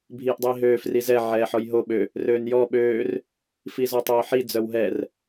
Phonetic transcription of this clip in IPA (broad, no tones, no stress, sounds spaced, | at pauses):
bʱ iː ʔ dˤ iː ɦ øː f r i z ɛ ʕ ɛː ħ ɔ j ɦ o ɓ ø | r øː n j ɔ ɓ øː r | f i z ɔ tˤ œː ħ i d͡z œ w ɦ ɛ r